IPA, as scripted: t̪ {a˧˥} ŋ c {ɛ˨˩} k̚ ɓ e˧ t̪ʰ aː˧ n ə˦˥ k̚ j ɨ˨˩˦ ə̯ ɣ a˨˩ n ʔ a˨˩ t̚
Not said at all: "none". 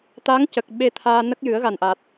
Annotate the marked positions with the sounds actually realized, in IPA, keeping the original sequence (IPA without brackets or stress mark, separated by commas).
a˧˥, ə˨˩